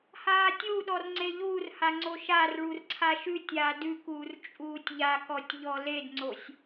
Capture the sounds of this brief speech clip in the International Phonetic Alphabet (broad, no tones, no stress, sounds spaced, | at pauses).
h aː tʲ u ɗ ɔ r ŋ͡ǀ e ʎ uː r h a ŋ͡ǀ o ʃ a r ɭ u r ǀʰ a ʃ ʉ tʲ aː d ʉ k uː r t͡ʃʼ uː tʲ ʎ a k ɔ tʲ ʎ ɔ l e d ŋ͡ǀ o sʲ